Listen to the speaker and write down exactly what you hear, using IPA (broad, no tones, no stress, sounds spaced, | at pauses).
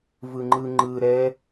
v ɯ ŋ͡ǃ ɯ ŋ͡ǃ ɯ ɾ ɛ